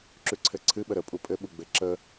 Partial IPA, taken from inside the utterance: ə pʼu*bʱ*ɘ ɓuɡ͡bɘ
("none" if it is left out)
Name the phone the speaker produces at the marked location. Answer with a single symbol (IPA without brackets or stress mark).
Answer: pʼ